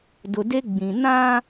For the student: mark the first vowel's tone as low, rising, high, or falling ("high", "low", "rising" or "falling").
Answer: low